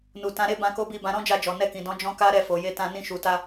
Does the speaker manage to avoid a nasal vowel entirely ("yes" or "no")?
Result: no